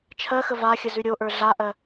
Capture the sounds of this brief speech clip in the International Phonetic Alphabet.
t͡ʃʰ ɜ x ə v a xʲ ə z ʉ ɾʲ o ʔ ə˞ ɮ a ʔ ɜ

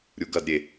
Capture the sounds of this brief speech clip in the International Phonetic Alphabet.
ɾʲ u ɡ ɐ d ɾʲ e

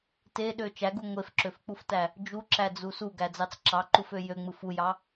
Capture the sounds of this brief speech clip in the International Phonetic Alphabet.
t e ɗ ø t͡ʃ æ ɡ u ŋʷ e f ǁ ø f k͡p u f t æ | d͡ʒ u ǁ æ d͡z u s u ɡ æ d͡z ɑ t͡s ǁ ɑ ǃ u f ø j ø ŋ͡m ɯ f u j ɑ

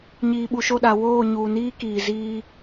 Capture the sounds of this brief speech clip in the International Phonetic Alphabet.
ɲ iː˨ ɓ u˨ ʃ o˦˨ ɗ a˨ w oː˦˨ ɲ uː˨ n iː˦ k iː˨ z iː˦

